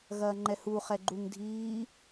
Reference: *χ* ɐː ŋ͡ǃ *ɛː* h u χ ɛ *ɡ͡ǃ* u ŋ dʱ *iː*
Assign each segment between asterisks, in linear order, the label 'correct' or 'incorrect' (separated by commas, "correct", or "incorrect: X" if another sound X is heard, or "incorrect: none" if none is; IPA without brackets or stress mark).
incorrect: ɣ, incorrect: ɛ, correct, correct